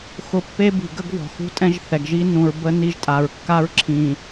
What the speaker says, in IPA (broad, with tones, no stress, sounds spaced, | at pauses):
x ʊ˨ pː e˦ b i̤˨ ɡ ə˦ ɡ v ɔ̤˨ x ṳ˦ tʼ ɛ̃˦ ʒ θ ɛ˨ ɡ ʒ i˦ n ũ˨ ɹ b ə˦ n i˦˨ ʒ tʼ a˨ ɹ kː a˦ ɹ ǁʰ ĩ˨